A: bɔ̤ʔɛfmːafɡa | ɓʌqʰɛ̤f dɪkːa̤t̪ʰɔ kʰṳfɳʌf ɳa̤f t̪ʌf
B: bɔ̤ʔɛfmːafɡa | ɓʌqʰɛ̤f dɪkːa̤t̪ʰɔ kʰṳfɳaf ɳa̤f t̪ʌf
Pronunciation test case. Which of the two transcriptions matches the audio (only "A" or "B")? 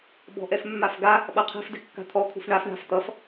B